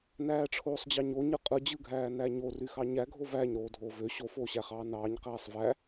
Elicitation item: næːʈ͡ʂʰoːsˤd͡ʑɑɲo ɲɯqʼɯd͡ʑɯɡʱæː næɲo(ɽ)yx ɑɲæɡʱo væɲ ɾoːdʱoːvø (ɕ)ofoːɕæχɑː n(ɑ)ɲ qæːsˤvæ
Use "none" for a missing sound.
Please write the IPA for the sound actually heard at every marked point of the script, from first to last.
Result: r, ɕ, ɑː

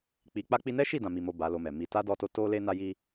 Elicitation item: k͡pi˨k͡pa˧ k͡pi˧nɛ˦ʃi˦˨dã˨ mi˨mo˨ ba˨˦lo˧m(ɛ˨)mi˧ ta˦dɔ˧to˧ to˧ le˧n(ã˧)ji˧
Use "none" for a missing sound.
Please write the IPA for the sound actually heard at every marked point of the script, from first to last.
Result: ɛ˨, a˧

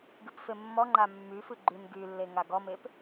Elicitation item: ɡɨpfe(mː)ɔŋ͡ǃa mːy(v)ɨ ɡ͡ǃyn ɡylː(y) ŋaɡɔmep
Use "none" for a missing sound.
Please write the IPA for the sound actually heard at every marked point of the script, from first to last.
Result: mː, f, e

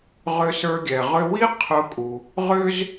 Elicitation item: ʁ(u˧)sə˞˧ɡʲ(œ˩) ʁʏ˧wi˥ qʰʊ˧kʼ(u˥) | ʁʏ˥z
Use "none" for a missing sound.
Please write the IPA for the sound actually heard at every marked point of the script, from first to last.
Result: ʏ˧, ɛ˩, u˩

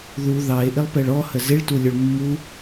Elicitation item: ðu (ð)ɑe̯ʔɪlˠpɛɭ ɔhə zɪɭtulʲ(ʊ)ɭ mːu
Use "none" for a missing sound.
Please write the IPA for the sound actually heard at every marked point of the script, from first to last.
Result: ð, ʊ

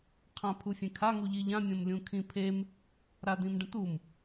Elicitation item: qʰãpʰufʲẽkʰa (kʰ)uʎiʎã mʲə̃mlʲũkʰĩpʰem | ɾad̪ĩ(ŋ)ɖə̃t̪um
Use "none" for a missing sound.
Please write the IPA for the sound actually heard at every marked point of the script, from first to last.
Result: ŋ, m

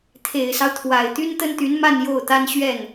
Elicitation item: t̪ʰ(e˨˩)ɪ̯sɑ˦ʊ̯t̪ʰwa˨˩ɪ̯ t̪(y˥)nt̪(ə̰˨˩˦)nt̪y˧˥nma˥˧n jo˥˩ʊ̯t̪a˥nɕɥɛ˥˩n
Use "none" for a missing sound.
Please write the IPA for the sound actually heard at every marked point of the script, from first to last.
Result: e˨˩, y˥, ə˥

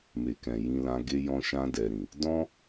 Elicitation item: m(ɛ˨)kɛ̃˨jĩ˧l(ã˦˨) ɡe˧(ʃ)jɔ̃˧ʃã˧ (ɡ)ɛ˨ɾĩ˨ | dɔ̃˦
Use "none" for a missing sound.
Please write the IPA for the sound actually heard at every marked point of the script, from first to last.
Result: e˨, ã˧, none, d

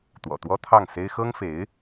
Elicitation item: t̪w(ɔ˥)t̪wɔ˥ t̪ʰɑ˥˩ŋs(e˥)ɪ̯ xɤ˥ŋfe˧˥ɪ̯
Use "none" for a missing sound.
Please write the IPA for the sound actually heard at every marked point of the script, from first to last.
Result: ɔ̰˨˩, e˥

